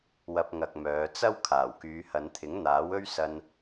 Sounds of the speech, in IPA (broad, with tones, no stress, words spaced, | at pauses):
wɐ˧p̚ŋɐ˨k̚mœː˨˧ t͡sɐ˥w kʰaː˨˩wkyː˨˧hɐ˨˧nt̪ʰɪ˨˥ŋ n̪aː˨˥wɵ˥ɥsɐ˧n